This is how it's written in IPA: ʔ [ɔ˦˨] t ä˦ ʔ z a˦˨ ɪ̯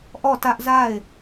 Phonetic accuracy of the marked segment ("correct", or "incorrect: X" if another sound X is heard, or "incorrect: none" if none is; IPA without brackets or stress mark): correct